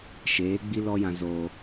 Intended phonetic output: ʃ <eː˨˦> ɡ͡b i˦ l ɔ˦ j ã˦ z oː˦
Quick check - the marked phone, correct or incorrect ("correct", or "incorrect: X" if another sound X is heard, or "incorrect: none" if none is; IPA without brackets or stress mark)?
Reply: correct